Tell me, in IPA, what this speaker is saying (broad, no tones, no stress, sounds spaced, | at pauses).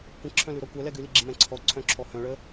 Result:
kʷ ə̃ ǁʰ œ̃ l ʉ ɾ ɔ kʷ œ l ɛ ɡ ʉ l i ɡ͡ǁ i m ɛ̃ ǀʰ ɔ ǀʰ œ̃ ǁʰ ɔ h œ̃ ɭ ə